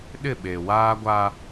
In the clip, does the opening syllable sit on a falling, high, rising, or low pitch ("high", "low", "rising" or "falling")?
falling